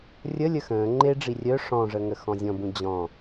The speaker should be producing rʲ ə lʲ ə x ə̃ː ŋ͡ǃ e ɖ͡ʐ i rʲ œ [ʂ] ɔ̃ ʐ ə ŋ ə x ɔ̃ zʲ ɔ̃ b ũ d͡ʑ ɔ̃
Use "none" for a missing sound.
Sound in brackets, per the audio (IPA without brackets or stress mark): ʂ